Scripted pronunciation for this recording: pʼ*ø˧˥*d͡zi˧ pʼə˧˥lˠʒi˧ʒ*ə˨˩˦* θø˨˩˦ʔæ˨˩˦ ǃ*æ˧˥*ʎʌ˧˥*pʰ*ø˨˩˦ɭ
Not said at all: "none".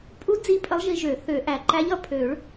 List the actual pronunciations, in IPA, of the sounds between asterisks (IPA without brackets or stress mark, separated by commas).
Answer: u˧˥, ø˨˩˦, æ˧˥, pʰ